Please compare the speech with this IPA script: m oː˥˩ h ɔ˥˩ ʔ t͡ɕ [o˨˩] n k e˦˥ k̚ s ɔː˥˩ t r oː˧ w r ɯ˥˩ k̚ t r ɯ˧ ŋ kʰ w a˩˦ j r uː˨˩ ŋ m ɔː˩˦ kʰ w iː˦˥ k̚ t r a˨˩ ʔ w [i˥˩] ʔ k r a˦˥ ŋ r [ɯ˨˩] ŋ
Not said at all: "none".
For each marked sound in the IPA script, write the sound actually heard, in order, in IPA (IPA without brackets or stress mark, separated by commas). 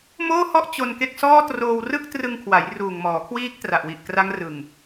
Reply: o˧, i˨˩, ɯ˨˩